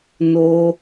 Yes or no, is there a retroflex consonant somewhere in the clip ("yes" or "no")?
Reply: no